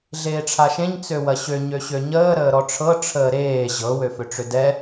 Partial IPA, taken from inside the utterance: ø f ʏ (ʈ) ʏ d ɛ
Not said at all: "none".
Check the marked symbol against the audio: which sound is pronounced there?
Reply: ʈ͡ʂ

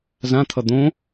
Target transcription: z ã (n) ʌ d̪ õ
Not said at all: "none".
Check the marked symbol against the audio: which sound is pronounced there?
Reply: t̪ʰ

